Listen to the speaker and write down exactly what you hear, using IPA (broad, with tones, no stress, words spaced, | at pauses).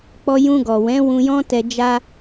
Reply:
k͡pɔ˧jũ˧ɡɔ˨wɛ̃˨˦ wũ˧jɔ̃˦tɛ˧d͡ʒa˦